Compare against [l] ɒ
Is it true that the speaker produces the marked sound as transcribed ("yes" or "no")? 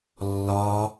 no